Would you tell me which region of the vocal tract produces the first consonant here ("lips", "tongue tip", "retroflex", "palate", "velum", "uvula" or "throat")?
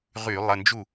uvula